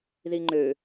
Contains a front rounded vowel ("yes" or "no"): yes